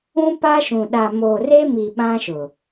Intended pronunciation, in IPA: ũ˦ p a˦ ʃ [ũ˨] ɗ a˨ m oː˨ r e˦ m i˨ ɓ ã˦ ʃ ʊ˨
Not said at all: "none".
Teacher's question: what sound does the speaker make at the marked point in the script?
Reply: ũ˨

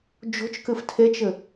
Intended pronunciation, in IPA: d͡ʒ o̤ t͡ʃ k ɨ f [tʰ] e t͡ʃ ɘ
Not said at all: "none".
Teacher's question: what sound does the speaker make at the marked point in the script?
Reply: tʰ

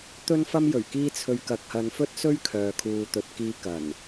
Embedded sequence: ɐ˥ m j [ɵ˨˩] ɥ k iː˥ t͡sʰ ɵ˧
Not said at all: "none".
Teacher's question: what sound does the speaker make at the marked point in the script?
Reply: ɵ˨˩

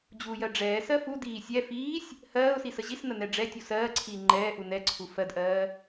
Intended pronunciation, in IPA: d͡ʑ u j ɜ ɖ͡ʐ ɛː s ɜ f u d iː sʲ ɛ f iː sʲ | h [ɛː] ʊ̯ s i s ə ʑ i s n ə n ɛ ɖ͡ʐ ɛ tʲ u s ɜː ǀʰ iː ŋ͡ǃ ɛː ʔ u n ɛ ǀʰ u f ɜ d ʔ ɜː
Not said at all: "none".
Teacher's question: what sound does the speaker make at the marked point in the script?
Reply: ɜː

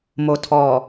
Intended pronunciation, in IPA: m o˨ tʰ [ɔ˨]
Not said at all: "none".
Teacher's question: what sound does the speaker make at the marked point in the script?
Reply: ɔ˨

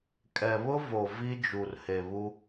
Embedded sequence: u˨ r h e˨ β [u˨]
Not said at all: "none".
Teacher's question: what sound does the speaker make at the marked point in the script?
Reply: u˦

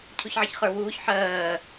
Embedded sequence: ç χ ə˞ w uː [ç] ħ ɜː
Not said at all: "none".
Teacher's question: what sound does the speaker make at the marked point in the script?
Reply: ç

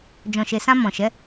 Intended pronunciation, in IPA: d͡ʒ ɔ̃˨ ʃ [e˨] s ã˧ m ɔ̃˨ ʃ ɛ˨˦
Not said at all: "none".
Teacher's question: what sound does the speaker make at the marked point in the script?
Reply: e˨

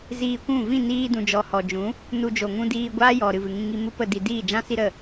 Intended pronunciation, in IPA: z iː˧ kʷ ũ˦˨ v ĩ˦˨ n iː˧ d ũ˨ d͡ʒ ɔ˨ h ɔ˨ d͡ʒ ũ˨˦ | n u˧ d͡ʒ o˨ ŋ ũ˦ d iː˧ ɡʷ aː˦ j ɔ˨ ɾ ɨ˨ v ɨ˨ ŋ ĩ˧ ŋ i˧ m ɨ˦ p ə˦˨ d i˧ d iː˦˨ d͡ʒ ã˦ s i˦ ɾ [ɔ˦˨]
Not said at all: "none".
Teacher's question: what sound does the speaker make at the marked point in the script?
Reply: ə˦˨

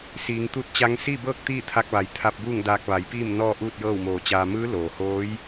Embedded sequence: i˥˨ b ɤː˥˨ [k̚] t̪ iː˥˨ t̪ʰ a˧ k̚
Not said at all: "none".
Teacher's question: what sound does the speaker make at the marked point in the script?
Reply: k̚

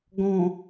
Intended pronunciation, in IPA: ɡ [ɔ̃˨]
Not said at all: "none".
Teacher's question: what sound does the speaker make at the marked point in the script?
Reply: ɔ̃˨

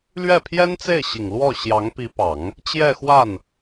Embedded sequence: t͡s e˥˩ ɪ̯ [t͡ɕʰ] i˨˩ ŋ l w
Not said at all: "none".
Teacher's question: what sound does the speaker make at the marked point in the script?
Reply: ɕ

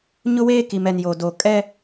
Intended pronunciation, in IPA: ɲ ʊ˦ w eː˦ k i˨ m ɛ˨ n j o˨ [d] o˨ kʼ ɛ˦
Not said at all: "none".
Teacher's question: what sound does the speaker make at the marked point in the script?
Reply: d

